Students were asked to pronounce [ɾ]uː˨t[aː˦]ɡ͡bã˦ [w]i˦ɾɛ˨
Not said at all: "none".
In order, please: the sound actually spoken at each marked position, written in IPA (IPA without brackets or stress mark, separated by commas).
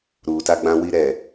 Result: ɾ, a˦, w